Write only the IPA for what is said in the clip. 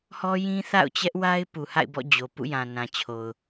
h ɔ˦ j ĩ˦ θ a̰˦˨ ʊ̯ t͡ɕ ɛ˦ ʔ w a˦ ɪ̯ p u˨ h a̰˦˨ ɪ̯ b ɔ̰˦˨ d͡ʑ o˨ p ṵ˦˨ j ã˨ n ã˨ t͡ɕʰ o˨ ʊ̯

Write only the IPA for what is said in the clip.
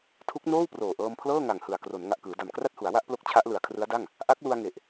tʰ u˦˥ k̚ n oː˥˩ w p r oː˨˩ ʔ ɤː˧ m pʰ l ɤː˥˩ ŋ a˨˩ ŋ h ɯ˨˩ a̯ k r o˩˦ n ŋ a˨˩ ʔ k ɯː˩˦ d a˨˩ m k r a˥˩ t̚ h u˩˦ a̯ w a˥˩ ʔ p l o˦˥ k̚ t͡ɕʰ a˦˥ ʔ l ɯ˨˩ a̯ kʰ r ɯ˦˥ a̯ d a˥˩ ŋ | ʔ a˦˥ k̚ l u˧ a̯ ŋ e˨˩ ʔ

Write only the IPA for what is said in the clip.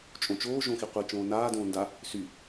t͡ʃʼ õ t͡ʃ oː ʒ õ x i qʷ i t͡ʃ õː n aː d õː n d a | s y

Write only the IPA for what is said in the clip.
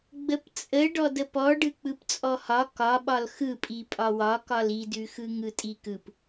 ɡ͡b ə p t͡sʼ ə ɖ ɔ d ə p ɔ ɖ ɯ k͡p ɯ p t͡sʼ ɔ h ɒ k ɒ ɓ ɒ l x ɯ pʼ i pʼ ɒ w ɒ k ɒ l i d ʉ x ɯ ŋ ɯ tʼ i k ɯ p

